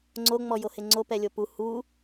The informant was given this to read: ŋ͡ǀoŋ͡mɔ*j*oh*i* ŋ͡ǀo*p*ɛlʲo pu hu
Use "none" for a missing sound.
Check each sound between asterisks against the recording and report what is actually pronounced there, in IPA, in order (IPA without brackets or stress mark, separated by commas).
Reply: j, e, p